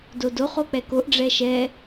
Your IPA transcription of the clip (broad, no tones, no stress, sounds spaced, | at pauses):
d o d o χ o k͡p ɛ k o ʔ ɖ͡ʐ ɛ ʃ ɛ